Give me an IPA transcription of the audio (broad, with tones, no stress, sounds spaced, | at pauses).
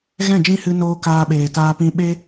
ɣ ɛ̃˦˨ d͡ʒ ĩ˦ h ɨ˧ n oː˧ k aː˧ ɓ eː˨ t aː˧ p ĩ˧ ɓ e˦